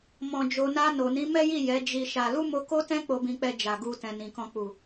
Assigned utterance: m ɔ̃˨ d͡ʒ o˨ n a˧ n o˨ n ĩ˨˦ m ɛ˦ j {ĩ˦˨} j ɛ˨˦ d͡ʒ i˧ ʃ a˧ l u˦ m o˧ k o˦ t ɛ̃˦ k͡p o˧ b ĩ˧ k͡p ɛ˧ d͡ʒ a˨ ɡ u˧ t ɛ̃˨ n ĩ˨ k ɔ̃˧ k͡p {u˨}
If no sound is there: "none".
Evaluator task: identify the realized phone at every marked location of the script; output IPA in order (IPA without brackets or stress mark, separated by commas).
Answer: i˦˨, u˨